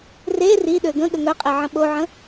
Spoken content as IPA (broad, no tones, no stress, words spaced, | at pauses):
re ri ɗøɡə̃ ɠəŋœqʼeʕə̃ ɓoʕə̃